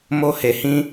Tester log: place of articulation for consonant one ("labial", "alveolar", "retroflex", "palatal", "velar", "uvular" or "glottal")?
labial